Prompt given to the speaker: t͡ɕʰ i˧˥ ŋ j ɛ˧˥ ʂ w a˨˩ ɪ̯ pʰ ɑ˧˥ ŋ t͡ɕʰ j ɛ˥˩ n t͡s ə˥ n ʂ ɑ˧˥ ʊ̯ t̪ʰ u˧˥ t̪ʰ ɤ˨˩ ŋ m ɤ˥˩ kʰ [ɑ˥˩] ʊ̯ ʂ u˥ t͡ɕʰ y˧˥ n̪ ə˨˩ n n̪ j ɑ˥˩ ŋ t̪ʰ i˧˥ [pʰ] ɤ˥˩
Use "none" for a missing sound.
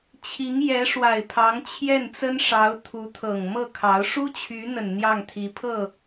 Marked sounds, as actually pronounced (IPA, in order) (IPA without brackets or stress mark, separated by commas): ɑ˧˥, pʰ